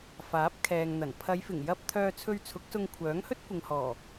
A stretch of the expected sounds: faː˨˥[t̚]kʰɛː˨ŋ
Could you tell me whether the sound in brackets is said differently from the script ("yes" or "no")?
yes